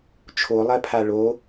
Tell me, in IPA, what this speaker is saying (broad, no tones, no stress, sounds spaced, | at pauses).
t͡ʃʰ o lˠ ɜ pʰ a ɭ o